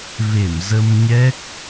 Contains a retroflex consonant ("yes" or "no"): no